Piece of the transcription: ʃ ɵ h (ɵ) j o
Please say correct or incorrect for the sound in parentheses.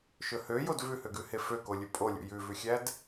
incorrect